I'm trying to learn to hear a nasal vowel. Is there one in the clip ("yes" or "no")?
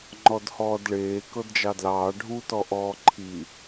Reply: no